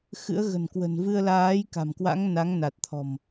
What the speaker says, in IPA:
xɨ̰˧˥ə̯ ɣə̤˨˩nkwə̤˨˩n vɨ˧ə̯laː˨˦jka̤˨˩mkwa̰˧˥ŋ na˨˦ŋ na˨˩t̚t̪ʰɔ̤˨˩m

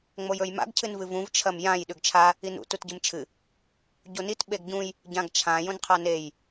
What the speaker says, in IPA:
ŋ͡mojɵjma̰ɡ cʰɨnvɨvũv t͡ʃʰɐmjãj ɗʉɡt͡ʃʰa | inṵ tutɟɨmt͡ʃʰɨ | ɟonit ɓeɡɟũj | ɟãɡt͡ʃʰã jõnqʰanej

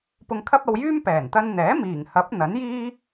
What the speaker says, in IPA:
pʊ˧ŋkʰɐ˥p̚ɐ˧wjyː˥m pɛː˨˩nt̪ɐ˧nn̪ɛː˨˥ miː˨˩ŋhɐ˨˥p̚ n̪ɐ˨˥njiː˥

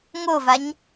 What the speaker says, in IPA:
ŋovaɲ

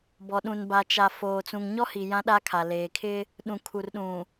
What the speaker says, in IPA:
bɔ˨ɗũ˨n ba˨t͡ʃa˨ foː˨t͡sũ˨ŋɲɔ˦hi˨ jã˦ɗa˦kʰa˨ leː˨kʰɪ˦ | ɗũ˨kʰu˨rɗũ˨

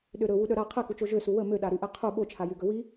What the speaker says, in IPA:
ɗøɾɵ wuɗœɾa qʰɛkut͡ʃo ʒøsu wə møɗaɾyʔɛ qʰu ɓot͡ʃʰajyɡɵ wi

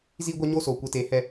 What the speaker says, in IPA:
ziː˦ɡʷa˦ɲoː˦ soː˧kʷe˧ te˨˦ hɛ˧

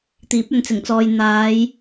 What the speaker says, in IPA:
t̪iː˨˥p̚ɵ˨nt͡sɪ˨˩ŋt͡sɔː˨j n̪aː˨˧j

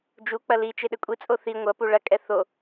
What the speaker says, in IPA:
d͡ʒu k͡pɐlit͡ʃe ɗɘkʷʼit͡sʼo θi ŋʷɐpu ɭɐkʼɛ θo

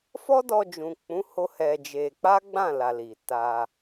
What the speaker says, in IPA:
fɔ˦ dɔ˧ d͡ʒũ˨k͡pũ˨˦ho˧ hɛ˧d͡ʒe˧ k͡pa˦ɡ͡bã˦˨la˨ li˨ ta˧

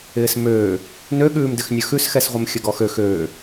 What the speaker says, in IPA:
ɪːsmøː | nøɠʉːmdɪx nʲəxʉsxɛsʁʷɪm xʲəɡɔxøx øː

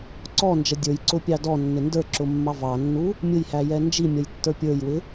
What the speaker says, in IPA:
ǀɔnd͡ʒʌ dʲə˞jǀʊpʲɑ dɔnːɪ ndə˞ǁʊmːɑ vɑnːu | mʲʊjhæjɛ nd͡ʒimʲʌjtːə˞ pʲə˞jwɪ

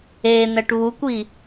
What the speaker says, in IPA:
en̪ɛʈ βukʷi

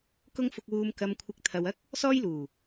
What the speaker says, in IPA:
kʊ˥ŋ fʊ˧k̚wuː˧m kɐ˧mkʷʰɪ˧k̚ t̪ʰɐ˧wɐ˥k̚ | sɔː˥jluː˨˩

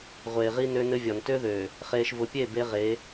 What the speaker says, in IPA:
ʁʷeː˨ʁi˦ nø˦nɘ˦vʲɒ˨n tø˦ðøː˨ | χeː˨ʃvʊ˨pʲeː˦˨b e˦ʁe˨˦

